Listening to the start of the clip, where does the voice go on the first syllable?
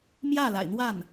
falling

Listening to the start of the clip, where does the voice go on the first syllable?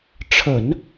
low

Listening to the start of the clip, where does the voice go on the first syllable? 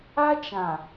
high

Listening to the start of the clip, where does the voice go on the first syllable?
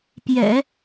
low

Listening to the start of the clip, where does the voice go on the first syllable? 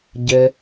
low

